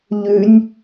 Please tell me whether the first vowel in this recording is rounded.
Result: yes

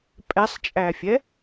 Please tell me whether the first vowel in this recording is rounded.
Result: no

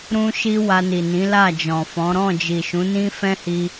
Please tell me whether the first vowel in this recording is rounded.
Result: yes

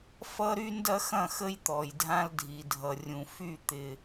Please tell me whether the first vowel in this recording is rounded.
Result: no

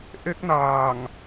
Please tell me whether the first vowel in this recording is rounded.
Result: no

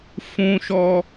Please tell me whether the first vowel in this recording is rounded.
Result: yes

